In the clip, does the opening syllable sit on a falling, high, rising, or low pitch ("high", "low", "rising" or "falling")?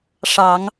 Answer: low